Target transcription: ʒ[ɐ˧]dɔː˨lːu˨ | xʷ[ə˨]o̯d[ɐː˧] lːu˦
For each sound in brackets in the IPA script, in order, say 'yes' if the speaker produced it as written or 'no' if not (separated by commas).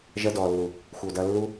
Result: yes, yes, yes